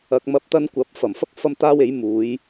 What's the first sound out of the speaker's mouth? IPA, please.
ɐ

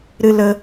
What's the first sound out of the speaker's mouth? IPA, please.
ɾ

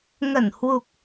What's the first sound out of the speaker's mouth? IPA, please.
ŋ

